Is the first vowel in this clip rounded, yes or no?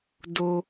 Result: yes